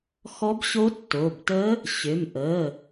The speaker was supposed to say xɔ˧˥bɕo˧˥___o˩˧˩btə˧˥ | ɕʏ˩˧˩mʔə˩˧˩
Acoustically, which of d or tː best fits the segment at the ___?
tː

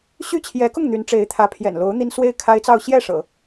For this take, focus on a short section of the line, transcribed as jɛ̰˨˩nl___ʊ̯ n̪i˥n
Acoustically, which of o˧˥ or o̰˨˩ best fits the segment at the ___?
o˧˥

